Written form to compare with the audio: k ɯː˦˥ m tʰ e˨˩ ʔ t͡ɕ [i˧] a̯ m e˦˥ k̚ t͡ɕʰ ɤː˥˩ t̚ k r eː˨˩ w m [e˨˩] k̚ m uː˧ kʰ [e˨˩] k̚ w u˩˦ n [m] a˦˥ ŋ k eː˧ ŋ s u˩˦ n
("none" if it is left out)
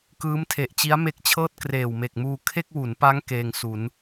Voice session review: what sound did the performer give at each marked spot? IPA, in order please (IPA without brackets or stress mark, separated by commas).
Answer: i˦˥, e˨˩, e˥˩, p